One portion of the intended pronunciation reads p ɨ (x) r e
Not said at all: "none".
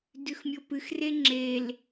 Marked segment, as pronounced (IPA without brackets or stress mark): x